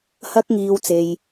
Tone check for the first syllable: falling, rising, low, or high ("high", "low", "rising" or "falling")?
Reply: high